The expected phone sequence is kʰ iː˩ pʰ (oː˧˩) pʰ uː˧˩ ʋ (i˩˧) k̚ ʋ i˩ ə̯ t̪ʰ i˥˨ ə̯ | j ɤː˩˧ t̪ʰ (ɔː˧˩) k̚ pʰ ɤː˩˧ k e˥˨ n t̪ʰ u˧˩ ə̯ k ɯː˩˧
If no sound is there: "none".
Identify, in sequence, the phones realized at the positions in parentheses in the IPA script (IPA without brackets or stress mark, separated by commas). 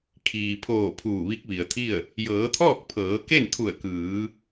oː˧˩, i˧˥, ɔː˥˨